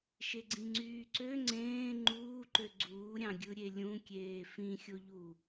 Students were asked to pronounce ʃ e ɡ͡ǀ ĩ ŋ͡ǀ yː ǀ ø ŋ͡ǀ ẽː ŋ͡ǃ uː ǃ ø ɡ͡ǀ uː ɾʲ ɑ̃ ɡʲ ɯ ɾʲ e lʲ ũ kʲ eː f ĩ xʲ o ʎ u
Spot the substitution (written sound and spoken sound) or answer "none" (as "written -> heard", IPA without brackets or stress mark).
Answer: none